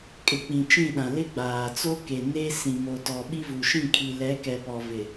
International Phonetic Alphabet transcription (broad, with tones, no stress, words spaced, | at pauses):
kʼɪ˨k͡pĩ˨ t͡ʃĩ˦˨ɗã˨ lɪ˦ ɡ͡baː˨t͡so˦ke˨ ne˦ sĩ˨mo˨tɔ˨ ɓi˦vu˨ ʃĩ˦˨kʰi˨ lɛ˨˦kɛ˨pɔ˨ vɪ˨